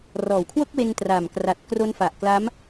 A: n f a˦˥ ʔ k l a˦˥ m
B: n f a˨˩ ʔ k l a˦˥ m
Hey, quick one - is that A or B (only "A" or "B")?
B